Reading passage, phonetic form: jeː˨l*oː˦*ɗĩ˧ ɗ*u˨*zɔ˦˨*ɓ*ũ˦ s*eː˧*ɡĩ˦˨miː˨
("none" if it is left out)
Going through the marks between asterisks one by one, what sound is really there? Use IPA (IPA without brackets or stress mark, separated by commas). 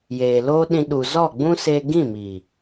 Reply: oː˦, u˨, ɡ͡b, eː˧